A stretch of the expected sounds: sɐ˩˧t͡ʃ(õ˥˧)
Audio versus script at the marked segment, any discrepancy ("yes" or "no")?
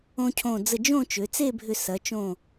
yes